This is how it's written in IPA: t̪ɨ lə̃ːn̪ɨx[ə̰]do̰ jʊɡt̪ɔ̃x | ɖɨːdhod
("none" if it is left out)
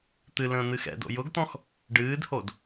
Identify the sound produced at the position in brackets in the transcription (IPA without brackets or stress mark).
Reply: ɛ̰